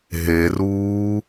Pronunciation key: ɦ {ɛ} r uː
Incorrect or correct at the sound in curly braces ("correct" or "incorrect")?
incorrect